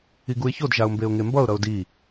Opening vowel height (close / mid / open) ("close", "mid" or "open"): close